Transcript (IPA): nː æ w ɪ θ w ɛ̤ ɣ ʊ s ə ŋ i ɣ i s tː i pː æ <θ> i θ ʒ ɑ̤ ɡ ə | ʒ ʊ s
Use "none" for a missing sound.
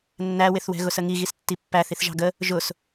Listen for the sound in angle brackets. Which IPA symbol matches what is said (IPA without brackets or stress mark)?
θ